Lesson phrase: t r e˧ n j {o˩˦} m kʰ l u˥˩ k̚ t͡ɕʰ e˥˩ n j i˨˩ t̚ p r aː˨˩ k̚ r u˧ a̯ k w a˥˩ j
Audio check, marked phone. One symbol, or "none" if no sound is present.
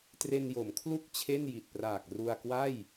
o˩˦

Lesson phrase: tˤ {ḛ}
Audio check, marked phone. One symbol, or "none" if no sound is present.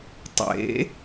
ḛ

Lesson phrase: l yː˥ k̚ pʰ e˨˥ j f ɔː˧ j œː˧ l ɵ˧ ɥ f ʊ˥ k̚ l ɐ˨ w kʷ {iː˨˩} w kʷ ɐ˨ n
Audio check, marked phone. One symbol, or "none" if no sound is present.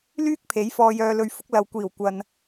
iː˨˩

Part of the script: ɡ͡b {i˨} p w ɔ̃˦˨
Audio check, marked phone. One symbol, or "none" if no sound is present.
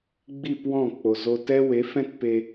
i˦˨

